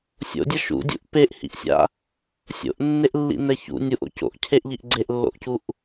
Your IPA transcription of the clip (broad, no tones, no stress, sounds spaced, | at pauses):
sʲ o̰ dʲ ʌ ʃ ṵ dʲ ṵ ʔ p e ʔ h ḭ ʔ sʲ a̰ | sʲ o̰ ʔ nː e ʔ lː ḭ n ɛ ç ṵ nʲ u ʔ o̰ c o̰ ʔ cʰ e ʔ ʎ i ʔ ɡ͡ǀ e ʔ lː o̰ ʔ c u ʔ